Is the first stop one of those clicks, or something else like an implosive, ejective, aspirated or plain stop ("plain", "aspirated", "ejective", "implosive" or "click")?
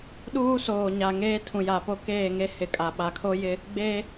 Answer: implosive